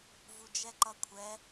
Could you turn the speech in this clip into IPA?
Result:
v u d͡ʒ ɛ ǃ ʌ kʷʰ ɛ

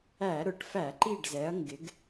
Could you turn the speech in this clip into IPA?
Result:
æ˧˩˧ ɾ ʊ˧˩˧ ʈ f æ˧˩˧ ǃ i˥˨ ɖ z ɛ˨˥ ɐ̯ ŋ ɡ ɪ˨˥ ɡ

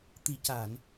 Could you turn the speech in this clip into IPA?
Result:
t̪ i˨˩ c aː˨˩˨ n

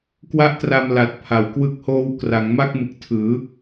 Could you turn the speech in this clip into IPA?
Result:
k w a˥˩ ʔ t r a˧ m l a˨˩ t̚ pʰ a˩˦ w k w ɯ˦˥ k̚ h oː˦˥ w k r a˩˦ ŋ m a˥˩ k̚ m ɯ˨˩ k̚ tʰ ɯː˩˦

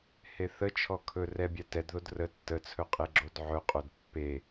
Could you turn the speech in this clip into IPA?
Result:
h e θ ə t͡ʃʰ ɔ kʰ ɵ r ɛ bʲ ɛ t ɛ d ð o d r ə tː ə t͡sʰ ɵ qʼ e ɡ͡ǁ o d ʕ ɵ qʼ o d pː e

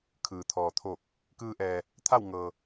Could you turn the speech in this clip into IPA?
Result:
kʰ ɯː˩ t̪ʰ ɔː˩ t̪ʰ oː˧˩ k̚ | k ɯː˧ ʔ ɛː˩ | t̪ʰ a˥˨ w ŋ ɤː˩

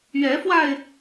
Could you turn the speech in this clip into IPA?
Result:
ɥ ɛ˨˦ f w a˧ ɪ̯

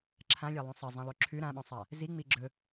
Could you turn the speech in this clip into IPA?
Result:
ǁʰ ã lʲ a lˠ ũ sˤ ɐ zˤ ĩ lˠ ʉ ǁʰ ʉ ɾ ã ɓ õ sˤ a | z i ŋ͡m i ɡ͡ǁ ɵ

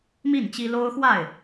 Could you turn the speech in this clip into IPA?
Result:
m i˥˨ n t͡ɕ i˦ l o˦ ʊ̯ x w a˥˨ ɪ̯

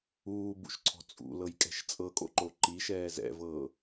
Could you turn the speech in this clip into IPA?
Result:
uː b ṵ ʃ ǀʰ ɔ̤ t͡sʼ ṵ l ɤ j kʼ ɛ̤ ʃ t͡sʼ ɤ kʼ o̰ ǃ o ǃ i ʃ ɛː z ɛ̰ v ɤː

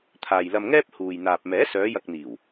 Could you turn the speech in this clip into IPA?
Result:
t̪ʰ aː˨ j l ɐ˧ m ŋ ɛː˥ p̚ h uː˨ j n̪ aː˨ p̚ m ɛː˨˥ s œː˨˧ j ɐ˨ k̚ n̪ iː˨˩ w

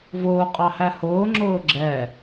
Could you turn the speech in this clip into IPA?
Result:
v ʊː qʼ ɑ h æ h ʊː ŋ͡ǁ ʊː ɡ͡ǁ ɛ

